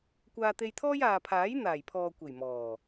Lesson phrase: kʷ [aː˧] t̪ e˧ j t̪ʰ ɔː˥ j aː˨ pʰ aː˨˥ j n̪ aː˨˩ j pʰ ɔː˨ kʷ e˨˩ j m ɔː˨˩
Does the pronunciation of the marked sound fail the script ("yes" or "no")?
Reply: no